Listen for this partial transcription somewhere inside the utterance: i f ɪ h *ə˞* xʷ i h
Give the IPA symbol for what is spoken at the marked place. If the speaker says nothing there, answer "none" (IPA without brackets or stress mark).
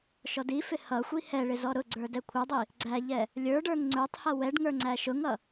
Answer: ʌ